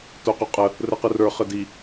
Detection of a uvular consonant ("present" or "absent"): present